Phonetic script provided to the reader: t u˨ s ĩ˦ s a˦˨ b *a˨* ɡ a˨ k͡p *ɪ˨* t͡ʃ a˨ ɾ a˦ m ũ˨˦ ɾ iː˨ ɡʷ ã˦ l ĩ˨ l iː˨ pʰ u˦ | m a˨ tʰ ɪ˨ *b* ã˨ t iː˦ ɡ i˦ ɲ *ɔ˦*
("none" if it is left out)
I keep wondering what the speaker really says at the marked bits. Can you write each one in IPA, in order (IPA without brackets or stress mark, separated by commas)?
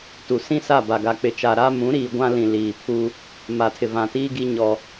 a˨, ɪ˨, v, ɔ˦